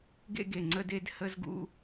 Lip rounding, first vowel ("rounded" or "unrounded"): unrounded